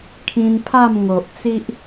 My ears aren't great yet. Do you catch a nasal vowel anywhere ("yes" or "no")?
yes